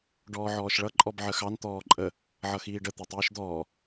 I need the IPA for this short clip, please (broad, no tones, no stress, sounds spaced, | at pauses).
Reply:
ɖ ɔː ʕ ɔː ʃ ɭ ʌ ǃʼ ɔ b ʕ ə x ɑ n t̪ ɔː ǃʼ ə | ʕ ʌ x iː ɖ ə t̪ ɛ tˤ iː ʃ d̪ ɔː